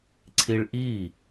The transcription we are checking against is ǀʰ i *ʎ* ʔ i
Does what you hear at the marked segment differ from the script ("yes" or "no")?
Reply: yes